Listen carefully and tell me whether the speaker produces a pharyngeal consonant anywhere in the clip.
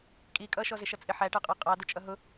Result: yes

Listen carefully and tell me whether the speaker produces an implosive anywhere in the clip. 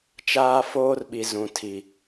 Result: yes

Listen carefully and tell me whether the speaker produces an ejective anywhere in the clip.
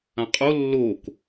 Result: yes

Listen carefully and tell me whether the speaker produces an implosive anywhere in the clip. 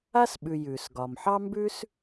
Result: yes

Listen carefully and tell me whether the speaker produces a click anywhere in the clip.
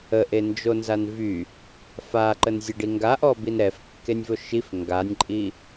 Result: yes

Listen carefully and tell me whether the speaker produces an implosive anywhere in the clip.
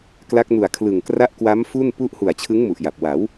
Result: no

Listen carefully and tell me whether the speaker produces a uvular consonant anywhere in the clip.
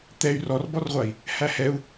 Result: yes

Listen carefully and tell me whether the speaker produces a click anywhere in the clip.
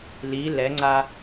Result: yes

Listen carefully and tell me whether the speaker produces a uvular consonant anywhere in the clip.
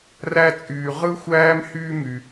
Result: yes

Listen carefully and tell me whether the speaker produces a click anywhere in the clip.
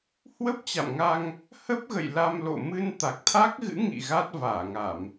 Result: no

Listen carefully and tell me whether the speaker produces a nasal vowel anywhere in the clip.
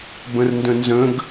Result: yes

